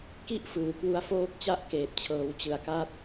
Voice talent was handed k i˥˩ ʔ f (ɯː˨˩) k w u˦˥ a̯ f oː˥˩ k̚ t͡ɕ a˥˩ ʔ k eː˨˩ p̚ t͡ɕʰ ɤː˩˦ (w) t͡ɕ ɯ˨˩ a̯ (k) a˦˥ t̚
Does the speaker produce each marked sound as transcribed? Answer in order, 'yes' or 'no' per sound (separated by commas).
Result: yes, yes, yes